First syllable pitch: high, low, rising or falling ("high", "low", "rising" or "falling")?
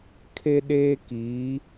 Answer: high